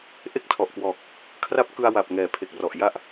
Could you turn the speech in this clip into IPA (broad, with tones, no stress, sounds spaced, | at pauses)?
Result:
ʔ e˥˩ k̚ tʰ ɔ˨˩ ʔ k w ɔː˨˩ k̚ | kʰ r a˦˥ p̚ k ɯ˧ a̯ w a˨˩ p̚ ŋ ɛː˩˦ pʰ e˨˩ k̚ r ɔ˨˩ ʔ j a˦˥ ʔ